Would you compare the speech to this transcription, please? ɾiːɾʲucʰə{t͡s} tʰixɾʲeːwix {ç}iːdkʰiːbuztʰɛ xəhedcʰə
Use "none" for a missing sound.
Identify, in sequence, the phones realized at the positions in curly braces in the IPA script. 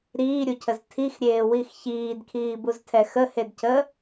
z, ç

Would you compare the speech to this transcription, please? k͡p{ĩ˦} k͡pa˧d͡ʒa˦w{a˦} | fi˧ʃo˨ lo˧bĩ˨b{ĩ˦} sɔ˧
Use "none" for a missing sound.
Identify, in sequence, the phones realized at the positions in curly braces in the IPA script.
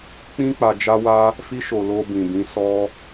ĩ˦, a˦, ĩ˨˦

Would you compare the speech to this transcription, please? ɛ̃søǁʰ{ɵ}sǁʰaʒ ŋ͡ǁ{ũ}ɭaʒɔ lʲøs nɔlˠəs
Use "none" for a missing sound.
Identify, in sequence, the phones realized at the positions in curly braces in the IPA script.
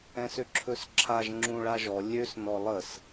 ɵ, ũ

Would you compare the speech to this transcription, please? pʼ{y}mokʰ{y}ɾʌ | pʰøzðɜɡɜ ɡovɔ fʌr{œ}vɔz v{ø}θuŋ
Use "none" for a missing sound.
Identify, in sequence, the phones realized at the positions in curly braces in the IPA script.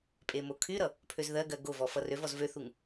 e, y, ø, ø

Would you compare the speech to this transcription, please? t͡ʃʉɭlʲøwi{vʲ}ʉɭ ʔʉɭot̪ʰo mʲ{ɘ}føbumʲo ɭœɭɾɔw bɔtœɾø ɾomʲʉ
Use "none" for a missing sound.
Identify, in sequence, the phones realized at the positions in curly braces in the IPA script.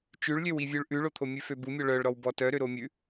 vʲ, ʉ

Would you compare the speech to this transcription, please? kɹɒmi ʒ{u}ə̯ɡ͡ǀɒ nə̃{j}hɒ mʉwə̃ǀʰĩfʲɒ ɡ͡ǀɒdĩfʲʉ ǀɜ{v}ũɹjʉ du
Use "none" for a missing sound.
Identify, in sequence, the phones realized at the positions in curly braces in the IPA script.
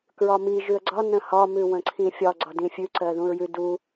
ʉ, none, ð

